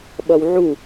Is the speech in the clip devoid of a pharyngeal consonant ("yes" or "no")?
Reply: no